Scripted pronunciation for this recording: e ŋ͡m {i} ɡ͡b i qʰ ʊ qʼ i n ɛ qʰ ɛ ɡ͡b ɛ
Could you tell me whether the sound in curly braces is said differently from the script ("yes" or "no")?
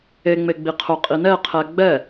yes